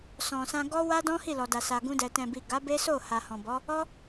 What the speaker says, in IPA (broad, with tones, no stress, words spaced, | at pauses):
sɔ̃˨sã˧ ɡɔ˦wa˦dɔ̃˦ hi˦˨lɔ˨da˨ sa˨ɡũ˧dɛ˨ tɛ̃˨bi˨ ɡa˨˦be˦so˦˨ ha˨hɔ̃˨bɔ˨˦ | ɔ˦